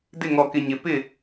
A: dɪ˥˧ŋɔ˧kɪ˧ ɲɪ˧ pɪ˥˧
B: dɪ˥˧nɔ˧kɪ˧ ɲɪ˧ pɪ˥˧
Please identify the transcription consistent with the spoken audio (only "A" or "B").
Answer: A